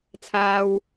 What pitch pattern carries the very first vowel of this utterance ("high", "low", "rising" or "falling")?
high